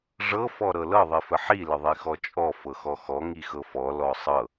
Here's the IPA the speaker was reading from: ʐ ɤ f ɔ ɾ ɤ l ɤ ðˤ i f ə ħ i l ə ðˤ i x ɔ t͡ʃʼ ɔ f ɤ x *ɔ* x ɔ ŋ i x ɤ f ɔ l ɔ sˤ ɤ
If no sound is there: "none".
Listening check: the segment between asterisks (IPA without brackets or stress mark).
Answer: ɔ